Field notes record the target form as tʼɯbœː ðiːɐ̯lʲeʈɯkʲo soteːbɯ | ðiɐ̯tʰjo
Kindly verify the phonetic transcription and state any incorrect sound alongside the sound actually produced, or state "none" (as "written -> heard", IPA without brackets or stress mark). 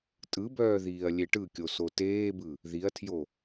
none